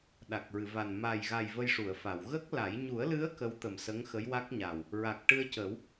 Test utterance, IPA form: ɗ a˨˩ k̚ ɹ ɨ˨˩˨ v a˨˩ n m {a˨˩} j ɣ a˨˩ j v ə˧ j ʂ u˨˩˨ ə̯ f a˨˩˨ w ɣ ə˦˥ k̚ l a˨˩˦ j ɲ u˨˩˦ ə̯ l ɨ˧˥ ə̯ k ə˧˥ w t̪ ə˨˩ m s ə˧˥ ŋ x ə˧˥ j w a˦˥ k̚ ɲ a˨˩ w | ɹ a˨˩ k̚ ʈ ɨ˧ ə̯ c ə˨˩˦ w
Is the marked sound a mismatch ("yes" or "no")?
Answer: no